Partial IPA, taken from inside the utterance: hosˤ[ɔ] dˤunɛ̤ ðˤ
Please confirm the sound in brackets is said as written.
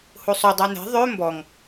no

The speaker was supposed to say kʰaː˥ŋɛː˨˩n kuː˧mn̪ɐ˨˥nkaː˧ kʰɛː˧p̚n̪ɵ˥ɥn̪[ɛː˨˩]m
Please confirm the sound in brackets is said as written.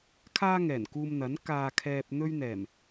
yes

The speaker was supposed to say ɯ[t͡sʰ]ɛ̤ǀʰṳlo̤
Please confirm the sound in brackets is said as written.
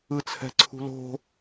yes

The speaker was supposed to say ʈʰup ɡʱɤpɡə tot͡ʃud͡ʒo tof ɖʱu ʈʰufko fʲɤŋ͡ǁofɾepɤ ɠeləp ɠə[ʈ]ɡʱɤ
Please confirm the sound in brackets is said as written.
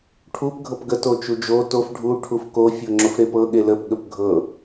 no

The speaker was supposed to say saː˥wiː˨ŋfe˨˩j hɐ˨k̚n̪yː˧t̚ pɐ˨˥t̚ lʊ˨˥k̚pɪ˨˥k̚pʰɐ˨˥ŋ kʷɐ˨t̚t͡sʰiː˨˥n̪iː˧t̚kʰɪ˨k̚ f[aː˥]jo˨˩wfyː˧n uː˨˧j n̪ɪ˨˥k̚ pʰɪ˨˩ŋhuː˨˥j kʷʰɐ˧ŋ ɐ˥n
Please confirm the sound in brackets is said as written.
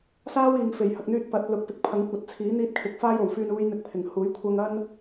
yes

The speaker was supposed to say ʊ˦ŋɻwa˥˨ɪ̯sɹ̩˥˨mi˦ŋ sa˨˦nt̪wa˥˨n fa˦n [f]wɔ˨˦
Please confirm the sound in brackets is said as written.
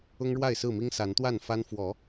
yes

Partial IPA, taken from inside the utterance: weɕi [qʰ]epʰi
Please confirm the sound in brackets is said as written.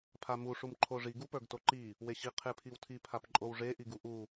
yes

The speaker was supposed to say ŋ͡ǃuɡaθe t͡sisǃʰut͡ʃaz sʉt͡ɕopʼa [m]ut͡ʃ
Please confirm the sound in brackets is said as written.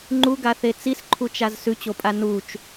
no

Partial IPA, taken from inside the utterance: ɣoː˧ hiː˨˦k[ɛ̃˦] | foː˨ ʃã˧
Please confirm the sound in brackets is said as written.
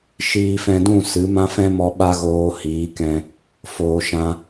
no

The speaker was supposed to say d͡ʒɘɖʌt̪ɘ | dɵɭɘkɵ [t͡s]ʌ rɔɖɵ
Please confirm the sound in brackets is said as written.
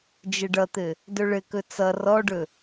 yes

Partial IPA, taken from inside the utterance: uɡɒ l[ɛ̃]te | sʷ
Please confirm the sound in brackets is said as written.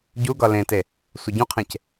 no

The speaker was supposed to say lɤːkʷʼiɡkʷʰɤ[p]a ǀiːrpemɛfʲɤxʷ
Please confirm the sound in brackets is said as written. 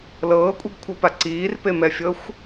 yes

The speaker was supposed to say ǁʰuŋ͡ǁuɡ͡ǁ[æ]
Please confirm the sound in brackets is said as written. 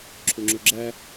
yes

